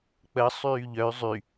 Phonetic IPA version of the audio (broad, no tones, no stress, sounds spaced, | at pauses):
k͡p ə sˤ yː ʎ œ y̯ zˤ y